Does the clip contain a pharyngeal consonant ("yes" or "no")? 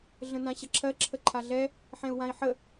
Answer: yes